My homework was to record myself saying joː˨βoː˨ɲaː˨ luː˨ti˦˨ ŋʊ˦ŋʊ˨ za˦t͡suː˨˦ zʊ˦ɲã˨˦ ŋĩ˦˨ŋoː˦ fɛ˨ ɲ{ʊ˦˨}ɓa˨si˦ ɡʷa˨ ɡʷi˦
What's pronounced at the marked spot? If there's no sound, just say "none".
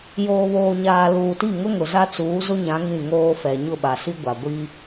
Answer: ʊ˦˨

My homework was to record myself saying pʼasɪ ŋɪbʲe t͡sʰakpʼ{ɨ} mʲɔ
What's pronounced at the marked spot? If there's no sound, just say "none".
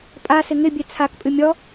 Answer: ɨ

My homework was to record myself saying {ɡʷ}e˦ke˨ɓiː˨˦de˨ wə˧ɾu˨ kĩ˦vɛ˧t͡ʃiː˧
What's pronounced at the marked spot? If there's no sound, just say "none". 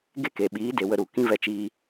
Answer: ɡ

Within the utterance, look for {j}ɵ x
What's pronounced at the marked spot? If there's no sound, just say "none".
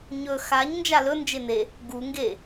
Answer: ɲ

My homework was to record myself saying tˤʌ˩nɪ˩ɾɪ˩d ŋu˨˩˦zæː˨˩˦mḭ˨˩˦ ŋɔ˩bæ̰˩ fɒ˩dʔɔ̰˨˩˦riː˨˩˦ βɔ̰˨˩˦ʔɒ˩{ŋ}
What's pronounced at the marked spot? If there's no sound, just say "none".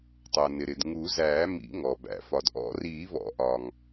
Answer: ŋ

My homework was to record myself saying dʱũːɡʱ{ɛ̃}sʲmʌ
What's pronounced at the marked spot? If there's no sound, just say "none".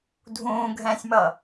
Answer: ɛ̃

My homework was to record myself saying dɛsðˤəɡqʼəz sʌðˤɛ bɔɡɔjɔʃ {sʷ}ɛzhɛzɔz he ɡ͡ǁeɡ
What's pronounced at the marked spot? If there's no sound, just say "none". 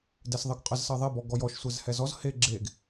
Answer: sʷ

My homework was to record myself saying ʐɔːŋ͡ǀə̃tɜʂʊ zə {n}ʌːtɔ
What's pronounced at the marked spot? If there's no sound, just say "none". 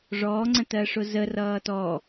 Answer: r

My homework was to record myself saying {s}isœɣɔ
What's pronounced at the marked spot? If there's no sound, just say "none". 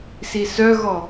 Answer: s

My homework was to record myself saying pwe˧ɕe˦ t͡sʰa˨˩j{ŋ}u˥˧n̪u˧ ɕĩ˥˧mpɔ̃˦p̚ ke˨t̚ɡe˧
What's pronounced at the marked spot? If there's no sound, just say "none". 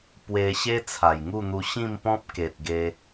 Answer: ŋ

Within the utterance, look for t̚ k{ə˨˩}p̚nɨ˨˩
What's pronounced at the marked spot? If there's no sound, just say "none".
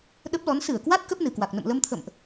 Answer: ə˦˥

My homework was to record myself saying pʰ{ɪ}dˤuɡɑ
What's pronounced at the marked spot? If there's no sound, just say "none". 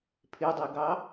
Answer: ɪ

